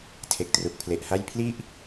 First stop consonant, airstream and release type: aspirated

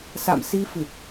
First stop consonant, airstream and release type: plain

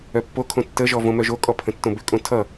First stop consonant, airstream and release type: plain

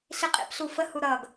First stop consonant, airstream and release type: ejective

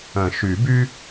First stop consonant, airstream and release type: plain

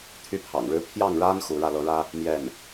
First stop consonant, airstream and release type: aspirated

